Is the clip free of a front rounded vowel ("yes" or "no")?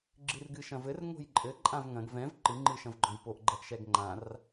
yes